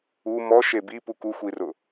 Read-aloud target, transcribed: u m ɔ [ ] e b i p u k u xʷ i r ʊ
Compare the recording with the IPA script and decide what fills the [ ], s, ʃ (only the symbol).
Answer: ʃ